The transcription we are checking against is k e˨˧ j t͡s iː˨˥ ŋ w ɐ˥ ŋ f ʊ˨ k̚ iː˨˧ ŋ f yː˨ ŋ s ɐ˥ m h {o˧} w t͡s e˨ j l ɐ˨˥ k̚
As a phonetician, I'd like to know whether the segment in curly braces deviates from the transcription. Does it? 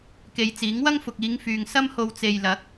no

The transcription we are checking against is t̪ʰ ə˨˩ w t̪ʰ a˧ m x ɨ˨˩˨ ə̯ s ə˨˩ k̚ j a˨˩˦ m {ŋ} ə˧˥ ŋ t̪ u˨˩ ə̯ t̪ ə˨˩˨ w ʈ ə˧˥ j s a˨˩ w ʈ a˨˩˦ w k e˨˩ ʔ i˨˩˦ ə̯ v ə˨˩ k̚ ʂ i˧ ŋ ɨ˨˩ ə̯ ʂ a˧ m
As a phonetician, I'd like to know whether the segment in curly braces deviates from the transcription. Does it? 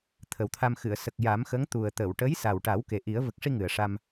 yes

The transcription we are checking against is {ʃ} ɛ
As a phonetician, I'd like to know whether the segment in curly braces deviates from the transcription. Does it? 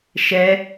no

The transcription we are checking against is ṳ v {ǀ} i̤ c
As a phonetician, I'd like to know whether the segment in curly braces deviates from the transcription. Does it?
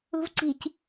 no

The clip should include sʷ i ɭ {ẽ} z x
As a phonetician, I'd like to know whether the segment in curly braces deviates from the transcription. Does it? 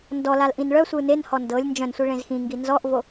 no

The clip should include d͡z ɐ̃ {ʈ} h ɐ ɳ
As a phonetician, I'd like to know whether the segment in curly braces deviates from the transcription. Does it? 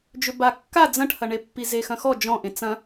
no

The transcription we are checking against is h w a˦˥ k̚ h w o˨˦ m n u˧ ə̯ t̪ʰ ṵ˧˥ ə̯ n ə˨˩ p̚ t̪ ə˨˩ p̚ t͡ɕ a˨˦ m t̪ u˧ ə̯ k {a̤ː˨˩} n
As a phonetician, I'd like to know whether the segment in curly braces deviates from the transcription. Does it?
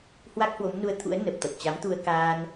yes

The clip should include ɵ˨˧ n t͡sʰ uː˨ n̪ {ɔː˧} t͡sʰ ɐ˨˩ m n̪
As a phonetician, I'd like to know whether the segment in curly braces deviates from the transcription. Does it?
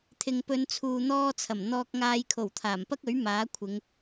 no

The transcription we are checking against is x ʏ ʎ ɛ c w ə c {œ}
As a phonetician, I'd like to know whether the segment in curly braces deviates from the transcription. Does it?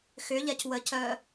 no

